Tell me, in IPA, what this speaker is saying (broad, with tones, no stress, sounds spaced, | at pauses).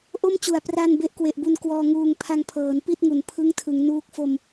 ʔ o˥˩ m t͡ɕ u˨˩ a̯ p r a˧ n b e˦˥ ʔ k w e˨˩ ʔ b u˧ n k w ɔː˧ ŋ uː˧ ŋ pʰ a˧ ŋ pʰ ɤː˩˦ n p i˥˩ t̚ ŋ u˩˦ n pʰ ɯ˦˥ ŋ tʰ ɯ˩˦ ŋ n uː˦˥ k̚ f o˧ m